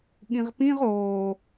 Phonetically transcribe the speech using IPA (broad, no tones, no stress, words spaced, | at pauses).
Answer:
ɠĩʁpĩʁ oː